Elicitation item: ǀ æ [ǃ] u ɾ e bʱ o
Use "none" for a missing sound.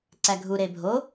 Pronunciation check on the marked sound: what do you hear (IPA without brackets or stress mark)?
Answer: ɡʱ